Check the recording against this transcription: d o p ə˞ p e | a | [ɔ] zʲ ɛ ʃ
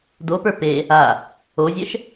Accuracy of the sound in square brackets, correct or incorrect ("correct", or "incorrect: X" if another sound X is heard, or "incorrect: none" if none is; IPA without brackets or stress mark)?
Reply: incorrect: o